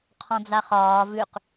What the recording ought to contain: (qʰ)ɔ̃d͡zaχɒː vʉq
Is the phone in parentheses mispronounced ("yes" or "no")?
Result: no